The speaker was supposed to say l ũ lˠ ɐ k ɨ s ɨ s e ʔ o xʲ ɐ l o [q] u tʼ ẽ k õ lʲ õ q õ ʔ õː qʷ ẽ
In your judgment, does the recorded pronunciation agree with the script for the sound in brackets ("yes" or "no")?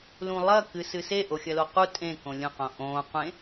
yes